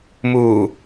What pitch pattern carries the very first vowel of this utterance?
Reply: low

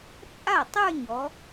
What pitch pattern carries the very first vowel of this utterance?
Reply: falling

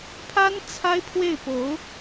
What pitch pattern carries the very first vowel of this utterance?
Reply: high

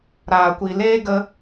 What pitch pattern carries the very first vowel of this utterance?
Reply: low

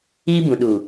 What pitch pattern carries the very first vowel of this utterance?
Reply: high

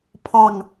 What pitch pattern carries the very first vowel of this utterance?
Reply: falling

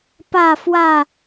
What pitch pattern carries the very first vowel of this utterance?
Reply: falling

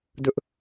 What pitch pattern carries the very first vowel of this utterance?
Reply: high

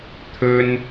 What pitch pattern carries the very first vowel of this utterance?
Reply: high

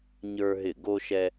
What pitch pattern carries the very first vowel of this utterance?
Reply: high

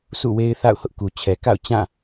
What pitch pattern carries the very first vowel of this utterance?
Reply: falling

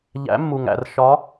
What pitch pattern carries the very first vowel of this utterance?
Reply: rising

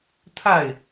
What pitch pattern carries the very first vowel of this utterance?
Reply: falling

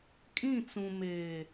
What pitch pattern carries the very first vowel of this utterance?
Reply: falling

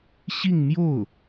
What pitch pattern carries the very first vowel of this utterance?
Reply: falling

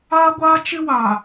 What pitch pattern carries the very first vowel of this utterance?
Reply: high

